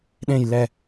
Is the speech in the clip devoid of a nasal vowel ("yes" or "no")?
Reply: no